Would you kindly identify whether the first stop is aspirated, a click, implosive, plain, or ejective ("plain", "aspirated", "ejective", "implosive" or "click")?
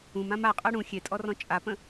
ejective